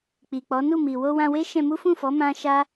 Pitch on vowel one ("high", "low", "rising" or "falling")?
low